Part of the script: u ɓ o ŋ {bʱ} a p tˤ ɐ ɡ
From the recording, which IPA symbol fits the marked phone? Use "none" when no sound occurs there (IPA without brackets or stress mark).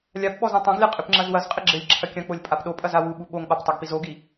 ɓ